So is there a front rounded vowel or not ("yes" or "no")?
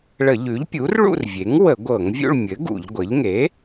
no